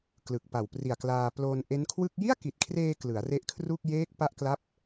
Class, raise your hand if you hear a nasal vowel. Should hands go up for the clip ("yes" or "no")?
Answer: no